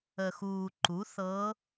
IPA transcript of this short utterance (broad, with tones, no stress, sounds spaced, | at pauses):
ə˨˩ x uː˨˩ ǃ u˩˥ θ ɤː˧˥